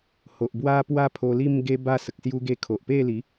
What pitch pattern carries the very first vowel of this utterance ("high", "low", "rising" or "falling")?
low